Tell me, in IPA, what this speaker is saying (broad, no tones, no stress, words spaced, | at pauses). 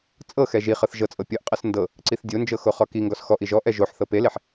t͡sʼɤxɛ ʒiχɤθ ʒɤt͡sʼɤ pʲɤʔqʼɤs ndɤ | ǀiθdʲond͡ʒɤ xoχɔkiŋɡɔs xɔʔiʒ ɔʔɛ ʒoħθɤ peleħ